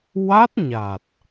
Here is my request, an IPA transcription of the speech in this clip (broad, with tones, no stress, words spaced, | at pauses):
wa˦˥t̚ɲa˨˩t̚